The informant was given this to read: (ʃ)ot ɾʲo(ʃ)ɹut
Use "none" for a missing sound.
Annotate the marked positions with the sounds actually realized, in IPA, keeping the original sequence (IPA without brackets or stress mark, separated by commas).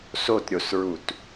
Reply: s, s